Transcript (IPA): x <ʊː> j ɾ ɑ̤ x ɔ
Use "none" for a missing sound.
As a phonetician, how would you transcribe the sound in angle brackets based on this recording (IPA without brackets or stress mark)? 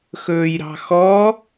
ɵː